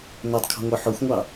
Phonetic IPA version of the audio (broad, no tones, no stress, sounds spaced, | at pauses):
n o tˤ kʰ ɔ̤ ŋʷ ə˞ ħ o xʷ ŋʷ ɑ